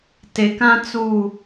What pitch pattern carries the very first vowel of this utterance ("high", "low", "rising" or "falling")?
low